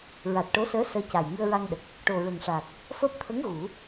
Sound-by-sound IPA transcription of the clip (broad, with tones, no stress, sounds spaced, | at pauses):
ɹ a˨˩ t̚ ʈ o˧˥ s əː˧˥ s əː˧˥ c a˨˩ j ŋ ɨ˧ ə̯ ɹ a˧ ŋ ɗ ə˨˩ k̚ | ʈ o˨˩ ɹ ə˨˩ ŋ ʂ aː˨˩ k̚ | f əː˦˥ p̚ t̪ʰ ə˧˥ ŋ ɣ u˨˩˦